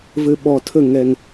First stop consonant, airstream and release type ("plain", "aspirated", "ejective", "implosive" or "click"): implosive